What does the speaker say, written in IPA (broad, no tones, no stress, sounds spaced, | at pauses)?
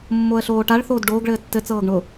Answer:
mː o ə̯ ɬ oː ʈ a ɭ θ oː d ɖ oː ɡ ɭ ɘː tː ɘ t͡s ɤː ɡ ɳ ʊ